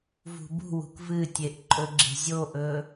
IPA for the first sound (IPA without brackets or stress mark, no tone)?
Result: v